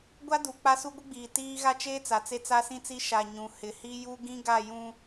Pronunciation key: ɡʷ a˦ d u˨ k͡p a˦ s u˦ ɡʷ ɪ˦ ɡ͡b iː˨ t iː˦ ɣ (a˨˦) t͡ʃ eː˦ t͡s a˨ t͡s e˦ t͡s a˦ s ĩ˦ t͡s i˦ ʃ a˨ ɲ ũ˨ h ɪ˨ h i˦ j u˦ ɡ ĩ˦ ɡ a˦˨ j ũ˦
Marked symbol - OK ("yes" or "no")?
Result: no